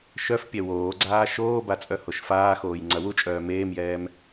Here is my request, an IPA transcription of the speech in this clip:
ʃ œ f pʲ ɛ w oː ɡ͡ǀ aː ʃ oː b a t͡sʼ œ h o ʃ f aː x oː j ŋ͡ǀ ɐ w u t͡ʃʼ œː m eː m j ɛː m

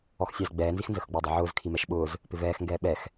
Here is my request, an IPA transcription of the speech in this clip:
ɔ x sʲ æ z ɡ͡b ɛː n z i x n z ə x ɡ͡b ʊː dˤ ɪ ʕ ʊː z kʰ i m ɛ ʃ ɓ ʊː z | p ɪ v ɛː x ŋ ɡ ɛː ɓ ɛ x

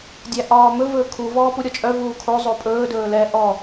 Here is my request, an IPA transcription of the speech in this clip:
dʲ æ ʔ ɒː m ɵ v ɵː kʰ u v ɔː p u ɾʲ ɔ t͡ʃʼ œ v uː kʰ o zˤ o pʼ ɵː d ɵː l ɛ ʔ ɔ

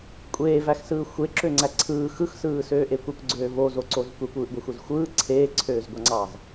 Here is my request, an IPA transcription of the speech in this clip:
kʷʼ eː v æ x s ɯː xʷ e ǁ ø ŋ͡ǀ æ ǀʰ ɯː x ɯ x s ɯː s øː ʔ e kʷ e kʷ ɡ͡ǀ øː v o z o ǀ o z kʷ e kʷ ɯː ʔ ɡʷ æ xʷ e z xʷ ɯː ǀʰ eː ǀʰ øː z ɡʷ ɑ ŋ͡ǀ ɑ z

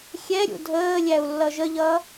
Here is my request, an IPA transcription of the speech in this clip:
xʲ ɛ ɾʲ ṵ dʱ əː lʲ æ u̯ lː ʌ ʒ ə ʎ ʌ

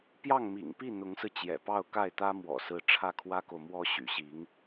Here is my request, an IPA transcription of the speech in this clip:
p j ɑ˥˩ ŋ m ḭ˨˩ ŋ p i˥˩ n̪ ʊ˧˥ ŋ s ɹ̩˧ t͡ɕ j ɛ̰˨˩ p ɑ˥˧ ʊ̯ k a˥˩ ɪ̯ t̪ ä˥ m w ɔ̰˨˩ s ɹ̩˧˥ ʈ͡ʂʰ ä˥˩ kʰ w ä˥ k o˨ ʊ̯ m w ɔ˥ ɕ y̰˨˩ ɕ i˧˥ ŋ

